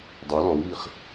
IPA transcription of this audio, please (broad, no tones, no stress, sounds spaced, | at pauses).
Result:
dˤ œ l ɔ̃ w β i χ